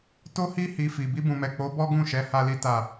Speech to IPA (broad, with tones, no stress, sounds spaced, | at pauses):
t o˦ h i˦ h i˧ f i˨ b i˧ b ũ˨ m ɛ˨ k͡p o˨˦ b ɔ˦ ɡ ũ˦˨ ʃ ɛ˨˦ h a˦ l i˦ t a˦˨